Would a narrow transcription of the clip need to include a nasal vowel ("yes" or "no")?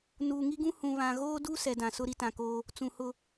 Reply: yes